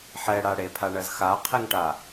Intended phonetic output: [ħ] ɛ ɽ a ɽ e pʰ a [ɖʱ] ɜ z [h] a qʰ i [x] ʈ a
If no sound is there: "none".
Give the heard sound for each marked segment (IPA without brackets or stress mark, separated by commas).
ħ, ɳ, x, ŋ